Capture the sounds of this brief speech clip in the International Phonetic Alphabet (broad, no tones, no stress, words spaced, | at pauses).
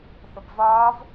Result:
θəbvɒːv